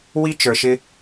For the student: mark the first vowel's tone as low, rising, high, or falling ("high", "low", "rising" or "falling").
high